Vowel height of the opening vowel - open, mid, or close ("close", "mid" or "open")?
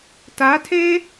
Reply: open